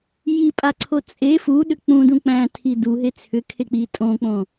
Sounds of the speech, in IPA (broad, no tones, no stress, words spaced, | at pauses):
jipʼaǀʰo t͡sʼe fuɗʏ k͡pũdũ k͡pæ̃tʰi duɦe t͡sʰʏkʰek͡pi tʼõk͡põ